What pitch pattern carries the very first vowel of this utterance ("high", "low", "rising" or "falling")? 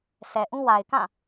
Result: low